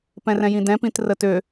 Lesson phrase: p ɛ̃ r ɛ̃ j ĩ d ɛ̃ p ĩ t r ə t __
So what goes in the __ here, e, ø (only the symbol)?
ø